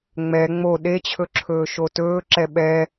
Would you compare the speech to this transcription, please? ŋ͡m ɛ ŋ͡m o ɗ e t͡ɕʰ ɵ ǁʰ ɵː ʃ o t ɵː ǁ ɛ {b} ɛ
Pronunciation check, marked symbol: incorrect: ɓ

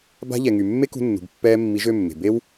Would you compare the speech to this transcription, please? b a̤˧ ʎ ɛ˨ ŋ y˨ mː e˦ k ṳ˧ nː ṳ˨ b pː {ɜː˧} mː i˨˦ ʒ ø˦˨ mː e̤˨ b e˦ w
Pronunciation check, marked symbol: incorrect: ɛː˧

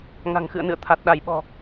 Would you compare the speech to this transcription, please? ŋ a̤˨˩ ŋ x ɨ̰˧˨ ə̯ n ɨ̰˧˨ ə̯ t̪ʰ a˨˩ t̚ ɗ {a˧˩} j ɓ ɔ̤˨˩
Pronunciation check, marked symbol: correct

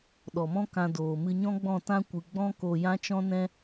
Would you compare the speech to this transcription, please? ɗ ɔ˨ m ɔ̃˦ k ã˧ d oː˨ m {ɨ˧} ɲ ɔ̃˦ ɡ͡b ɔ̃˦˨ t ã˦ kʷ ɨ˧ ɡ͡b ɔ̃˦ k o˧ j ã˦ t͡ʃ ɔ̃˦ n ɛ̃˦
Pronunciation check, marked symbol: correct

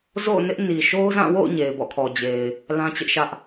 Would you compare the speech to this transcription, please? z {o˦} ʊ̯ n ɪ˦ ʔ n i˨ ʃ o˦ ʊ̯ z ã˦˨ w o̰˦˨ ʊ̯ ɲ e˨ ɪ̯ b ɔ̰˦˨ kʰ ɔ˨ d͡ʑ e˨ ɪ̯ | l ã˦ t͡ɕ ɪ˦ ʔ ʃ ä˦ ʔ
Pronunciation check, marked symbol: incorrect: o̰˦˨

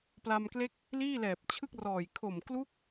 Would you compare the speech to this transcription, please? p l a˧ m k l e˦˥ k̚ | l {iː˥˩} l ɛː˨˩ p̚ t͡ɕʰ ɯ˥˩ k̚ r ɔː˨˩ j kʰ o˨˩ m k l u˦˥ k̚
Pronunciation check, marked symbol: correct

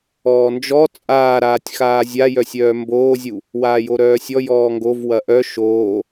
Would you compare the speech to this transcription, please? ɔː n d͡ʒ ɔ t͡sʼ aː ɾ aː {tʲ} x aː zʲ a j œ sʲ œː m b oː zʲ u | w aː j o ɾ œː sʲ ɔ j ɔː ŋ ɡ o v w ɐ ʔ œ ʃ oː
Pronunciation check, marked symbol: correct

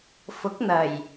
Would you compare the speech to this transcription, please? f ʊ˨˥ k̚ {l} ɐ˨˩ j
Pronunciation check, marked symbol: incorrect: n̪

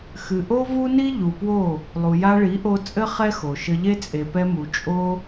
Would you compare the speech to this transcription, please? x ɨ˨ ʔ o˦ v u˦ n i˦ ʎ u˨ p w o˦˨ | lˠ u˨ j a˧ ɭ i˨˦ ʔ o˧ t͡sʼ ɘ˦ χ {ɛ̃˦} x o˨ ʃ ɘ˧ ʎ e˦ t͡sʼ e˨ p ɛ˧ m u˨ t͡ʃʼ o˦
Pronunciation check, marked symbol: incorrect: ɛ˦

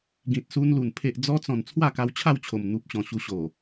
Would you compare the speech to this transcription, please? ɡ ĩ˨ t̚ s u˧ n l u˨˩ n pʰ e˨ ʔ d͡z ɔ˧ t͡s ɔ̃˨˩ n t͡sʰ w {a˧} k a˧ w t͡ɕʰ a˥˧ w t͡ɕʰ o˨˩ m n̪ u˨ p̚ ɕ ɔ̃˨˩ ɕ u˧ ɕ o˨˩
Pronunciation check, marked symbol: incorrect: a˥˧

